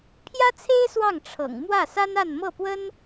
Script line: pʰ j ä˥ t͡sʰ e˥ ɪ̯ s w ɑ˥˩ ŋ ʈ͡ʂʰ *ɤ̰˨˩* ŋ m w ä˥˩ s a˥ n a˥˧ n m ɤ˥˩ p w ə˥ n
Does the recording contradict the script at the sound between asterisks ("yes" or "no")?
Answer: no